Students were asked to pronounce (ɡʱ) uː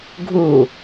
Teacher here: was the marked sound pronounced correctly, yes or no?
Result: yes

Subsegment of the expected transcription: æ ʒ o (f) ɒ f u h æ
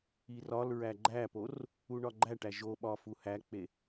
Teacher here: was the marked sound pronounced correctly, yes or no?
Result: no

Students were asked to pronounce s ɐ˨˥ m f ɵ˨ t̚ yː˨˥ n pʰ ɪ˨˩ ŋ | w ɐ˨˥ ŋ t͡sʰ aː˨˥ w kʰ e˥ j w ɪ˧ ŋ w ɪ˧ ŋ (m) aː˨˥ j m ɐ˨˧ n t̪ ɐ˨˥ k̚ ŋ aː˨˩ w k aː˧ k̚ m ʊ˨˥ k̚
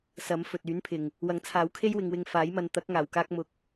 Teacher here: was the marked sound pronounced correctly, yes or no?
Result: no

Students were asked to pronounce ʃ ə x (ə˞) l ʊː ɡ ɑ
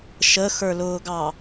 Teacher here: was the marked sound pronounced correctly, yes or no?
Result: yes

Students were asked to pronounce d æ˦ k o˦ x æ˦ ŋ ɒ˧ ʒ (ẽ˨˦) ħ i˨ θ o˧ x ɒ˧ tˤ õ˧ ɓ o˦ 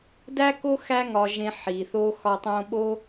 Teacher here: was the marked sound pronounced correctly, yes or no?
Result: no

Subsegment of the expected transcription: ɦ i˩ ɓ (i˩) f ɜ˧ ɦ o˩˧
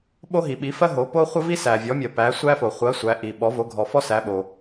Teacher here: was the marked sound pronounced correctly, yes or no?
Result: no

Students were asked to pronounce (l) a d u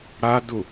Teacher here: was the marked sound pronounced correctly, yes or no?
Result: no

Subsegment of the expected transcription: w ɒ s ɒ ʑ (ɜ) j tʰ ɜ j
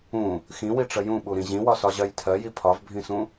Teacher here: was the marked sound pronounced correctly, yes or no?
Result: yes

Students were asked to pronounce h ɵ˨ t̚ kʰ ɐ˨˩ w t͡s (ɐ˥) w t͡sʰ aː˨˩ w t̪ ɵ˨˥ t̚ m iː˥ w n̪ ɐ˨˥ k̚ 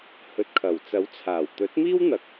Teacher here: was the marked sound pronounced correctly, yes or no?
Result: no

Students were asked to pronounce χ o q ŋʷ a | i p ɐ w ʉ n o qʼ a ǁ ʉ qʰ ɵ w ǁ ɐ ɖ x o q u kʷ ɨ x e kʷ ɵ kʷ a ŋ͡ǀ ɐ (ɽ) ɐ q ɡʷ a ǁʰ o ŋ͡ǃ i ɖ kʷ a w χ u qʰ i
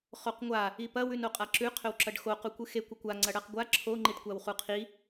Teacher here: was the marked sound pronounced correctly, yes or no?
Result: yes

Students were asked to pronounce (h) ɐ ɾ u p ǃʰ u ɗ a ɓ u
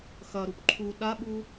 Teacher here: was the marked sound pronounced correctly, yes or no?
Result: no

